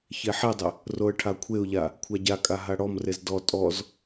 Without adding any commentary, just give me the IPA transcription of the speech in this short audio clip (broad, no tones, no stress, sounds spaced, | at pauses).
ç e ħ i dˤ ɪ | r o ə̯ ʈʰ a kʷʰ e ʊ̯ ʎ a | kʷʰ a ɟ a kʼ a ɦ a ɽ ɔ m r e z d ɔ tʼ ɔ z